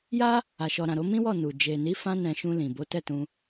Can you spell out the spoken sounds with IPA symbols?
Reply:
j a˦ | a˨ ʃ ɔ˨ ɾ ã˨ ɾ o˨˦ m ĩ˦ w ɔ˦˨ n u˨ d͡ʒ e˨ n i˨˦ f ã˧ n ɛ̃˧ ʃ ũ˧ l ĩ˨ b o˨˦ t ɛ˦˨ t ũ˧

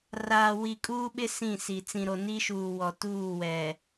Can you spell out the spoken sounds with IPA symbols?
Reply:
r aː˨ w i˨ kʼ uː˦ ɓ ɪ˦ s ĩ˦˨ s i˨ t͡s ĩ˨ ɾ o˨ n i˦ ʃ uː˨ w ɔ˨ t uː˦˨ w ɛ˨

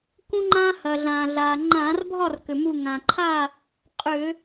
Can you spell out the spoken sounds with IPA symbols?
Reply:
k ũ˦ ŋ͡ǃ ãː˦ h ɐː˩ ɮ ãː˩ ɮ aː˩ ŋ͡ǃ ãː˧˩˧ r bʱ ɒ˥˨ r k ʏ˩ m u˧˩ ŋ ã˩ ǃʰ a˥˨ | qʼ ʏ˧˩˧

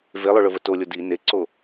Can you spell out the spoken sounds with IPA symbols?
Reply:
v e lˠ ɵ ɭ ɵ v ə t o lʲ o d i n e ǀ o

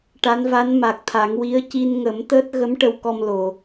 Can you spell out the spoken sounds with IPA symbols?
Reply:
ʈ a˧˥ n v a˧˥ n m a˨˩ k̚ t̪ʰ a˨˩˦ ŋ w i˧˥ ə̯ c i˧ n ŋ ə˨˩˦ m t̪ əː˦˥ t̚ ɣ ə˧˥ m ʈ ə˧ w k ɔ˧ m l o˨˩˨

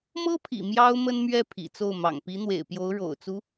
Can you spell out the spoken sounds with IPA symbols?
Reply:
m ɤ˥ pʰ ḭ˨˩ m j ɑ˥ ʊ̯ m ə˥ n m ɥ ɛ˥˩ pʰ ḭ˨˩ t͡s o˥˩ ʊ̯ m ɑ̰˨˩ ŋ p i˧˥ n̪ w ḛ˨˩ ɪ̯ p j o˧˥ ʊ̯ ɻ o̰˨˩ ʊ̯ t͡s u˧˥

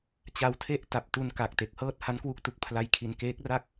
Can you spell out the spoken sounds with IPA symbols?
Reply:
t͡ɕ a˦˥ w tʰ e˥˩ ʔ t a˨˩ p̚ t u˧ n k a˨˩ k̚ t e˨˩ k̚ h ɤː˥˩ t̚ h a˦˥ n k w u˦˥ k̚ t u˨˩ k̚ pʰ l a˧ j kʰ i˧ n k eː˦˥ k̚ r a˥˩ k̚

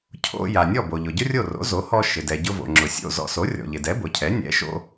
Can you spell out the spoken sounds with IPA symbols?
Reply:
cʰ o̰˧ j a˩ nʲ ɔ˥˩ b o˩ ʎ ʊ˩ ɟ ʊ˥ rʲ o˥˩ r o̰˩˥ z o˩˥ h ɔ˧ ʃ ɪ˩ d ɛ˩ ɟ ʊ˧ v o̰˩ ŋ͡ǁ ʊ˩ sʲ o̰˥˩ z ɔ̰˧ s o˩˥ rʲ ɔ̰˩ ʎ ɪ˩ d ɛ˩˥ b ʊ˩ cʰ ɛ˩˥ nʲ ɛ̰˩˥ ʃ o̰˧

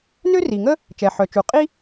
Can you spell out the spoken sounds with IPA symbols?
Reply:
n ø˥ r i˩ ŋ ə˥ | t͡ʃ ɛ˩ ħ œ˩ t͡ʃ u˩ qʼ i˥

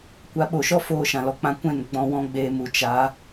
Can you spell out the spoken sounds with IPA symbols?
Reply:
kʷ a˧ ɓ o˨ ʃ ɔ˦ f oː˦˨ ʃ ã˨ l ɔ˦ k͡p ã˦ kʷ ɛ̃˦˨ n ɡ͡b ɔ̃˧ w ɔ̃˦ ɡ͡b eː˧ m u˨ t͡ʃ a˨˦

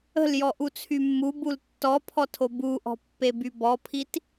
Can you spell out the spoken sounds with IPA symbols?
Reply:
ə̤ l j ɔ ʔ u t͡sʰ y mː u b u l tː ɔ pʰ ɔ tʰ o b u ʔ ɔ̤ pː e b y b ɔ pʰ i t

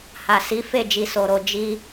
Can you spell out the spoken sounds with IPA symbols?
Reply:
h a˨ s i˨˦ f e˦˨ d͡ʒ i˧ s o˨ ɾ o˧ d͡ʒ i˧

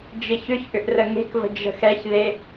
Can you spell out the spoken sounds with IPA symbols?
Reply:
d͡ʒ ɪ ç ʏ ç ʔ ʏ ʔ r ə ŋ e̤ k v ə̤ d͡ʒ ə̤ x ɛ ç ð e

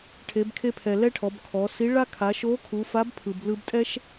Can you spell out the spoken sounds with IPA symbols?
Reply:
ʈʰ e˩˧ b kʰ e˧ pʰ ɛ˩ l ɛ˥ ʈʰ ɔ˩˧ b kʰ ɔ˩˧ s i˧˥ ɭ a˥ kʰ a˩˧ ʃ o˧˥ kʰ u˩˧ f a˧˥ b pʰ ɯ˩ b l ɯ˧ b tʼ ɛ˥ ʃ

